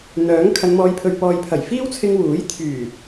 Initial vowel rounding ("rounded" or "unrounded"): rounded